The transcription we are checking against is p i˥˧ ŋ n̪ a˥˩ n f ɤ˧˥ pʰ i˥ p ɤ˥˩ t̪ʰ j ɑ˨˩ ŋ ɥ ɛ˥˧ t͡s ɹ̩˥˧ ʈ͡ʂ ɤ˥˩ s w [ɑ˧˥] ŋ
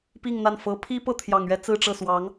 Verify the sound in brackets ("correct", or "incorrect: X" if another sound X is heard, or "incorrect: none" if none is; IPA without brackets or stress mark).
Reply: correct